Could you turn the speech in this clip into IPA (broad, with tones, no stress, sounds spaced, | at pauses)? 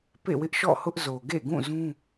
p ḛ˦˨ w ɪ˦ ʔ ʃ ɔ̰˦˨ h ʊ˦ ʔ z o˨ ɡ ḛ˦˨ ɡ ũ˦˨ z ũ˦